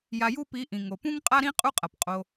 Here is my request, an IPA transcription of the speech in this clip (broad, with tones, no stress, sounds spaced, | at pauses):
j a˧ j u˦ p i˨˦ ʔ ĩ˨ ŋ o˨ p ũ˦ ŋ qʼ a˦ ɾ ĩ˦ qʼ u˦ qʼ ɐ˨ p qʼ o˧